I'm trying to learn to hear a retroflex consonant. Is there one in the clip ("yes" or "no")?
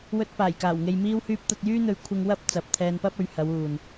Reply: no